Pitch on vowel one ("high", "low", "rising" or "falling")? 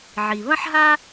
low